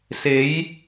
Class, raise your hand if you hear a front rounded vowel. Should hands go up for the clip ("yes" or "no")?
no